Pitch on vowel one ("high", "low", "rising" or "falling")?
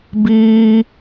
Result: high